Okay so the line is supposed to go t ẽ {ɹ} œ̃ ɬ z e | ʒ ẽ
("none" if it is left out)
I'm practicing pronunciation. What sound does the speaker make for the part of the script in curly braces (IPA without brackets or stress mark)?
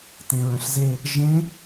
ɹ